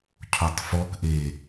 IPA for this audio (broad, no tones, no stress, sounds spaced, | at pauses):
cʰ o tˤ f ɔ k ʔ e